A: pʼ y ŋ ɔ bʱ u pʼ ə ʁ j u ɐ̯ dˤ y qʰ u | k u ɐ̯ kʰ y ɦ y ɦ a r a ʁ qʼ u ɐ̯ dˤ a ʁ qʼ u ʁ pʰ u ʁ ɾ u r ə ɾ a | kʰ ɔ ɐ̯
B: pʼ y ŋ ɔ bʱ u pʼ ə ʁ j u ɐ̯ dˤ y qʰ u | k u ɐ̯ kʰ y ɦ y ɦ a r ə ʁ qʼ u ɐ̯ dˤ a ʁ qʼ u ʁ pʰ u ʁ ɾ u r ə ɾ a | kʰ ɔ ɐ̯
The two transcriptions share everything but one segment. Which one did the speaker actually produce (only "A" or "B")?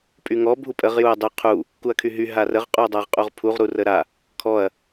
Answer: B